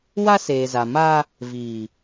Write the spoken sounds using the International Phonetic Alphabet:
wa˦seː˨za˨ ma˦ | viː˨

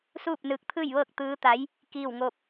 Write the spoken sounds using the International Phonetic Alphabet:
suː˥˨p̚nɯː˧k̚t̪ʰɯː˥˨jʋɤː˥˨k̚ t̪ɯː˧˥t̪a˧˥j | kiː˥˨wŋo˥˨p̚

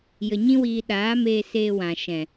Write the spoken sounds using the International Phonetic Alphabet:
jə˧ɲĩ˦wiː˧ ɗaː˨˦meː˧seː˧wã˨ ʃɛ̃˨

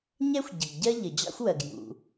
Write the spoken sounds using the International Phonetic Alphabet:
ɲɛ˥xʷɟə˩ɡɟɜ˥ ʎə˩d͡ʑɑ̰˥xʷwɜ˩ɡ jṵ˩

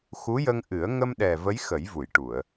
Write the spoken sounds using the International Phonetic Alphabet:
xu˧˥jə˧ŋʔɨ˨˩˦ə̯ ŋə˧mɗɛ˨˩ və˧˥jxə˨˩˦jvu˨˩˨jʈu˨˩˨ə̯

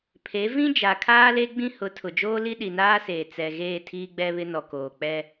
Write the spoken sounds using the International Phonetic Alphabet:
pʰe˨˦ vĩ˦d͡ʒa˨kʰaː˦ le˦ɡ͡bĩ˦ hʊ˨˦tʰʊ˨d͡ʒoː˦ li˦ɗi˨naː˦seː˨ t͡sɛ˨ɣeː˦˨ tʰiː˦ɡ͡bɛ˦βɪ˦nɔ˨ koː˨k͡pɛ˦

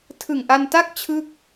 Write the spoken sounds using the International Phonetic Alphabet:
tʰɯ˨˩ŋʔa˧nta˥˩k̚ t͡ɕʰɯ˥˩k̚

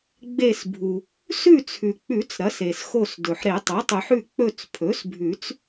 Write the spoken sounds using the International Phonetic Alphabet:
ɡ͡be˦˨sbʱu˩ | sʉ˦˨t͡sʰʉ˩k͡pʉ˨˩˦t͡s ɾɐ˩˥se˩sxo˦˨sdɵ˩ħ ɾe˨˩˦tˤɵ˩˥tˤʉ˨˩˦ħʉ˦˨ k͡pɵ˦˨t͡spʰɵ˩˥sbʱʉ˨˩˦t͡s

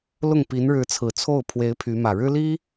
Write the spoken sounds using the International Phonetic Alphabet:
lʊ˥˩ŋ pi˧˥nɻɻ̩˧˥t͡sʰɹ̩˨˩ t͡sʰo˥˩ʊ̯pʰwe˧˥ɪ̯ pʰy˧˥mä˨˩ ɻɻ̩˥li˥

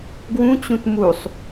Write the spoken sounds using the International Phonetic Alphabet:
ɡwũt͡ɕũt musˤ

